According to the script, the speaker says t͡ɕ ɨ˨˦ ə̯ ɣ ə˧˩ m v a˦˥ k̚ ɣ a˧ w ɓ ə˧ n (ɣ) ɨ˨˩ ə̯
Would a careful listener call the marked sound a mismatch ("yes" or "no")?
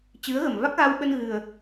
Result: no